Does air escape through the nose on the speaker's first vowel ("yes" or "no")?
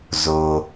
no